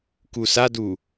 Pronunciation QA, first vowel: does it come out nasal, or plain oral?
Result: oral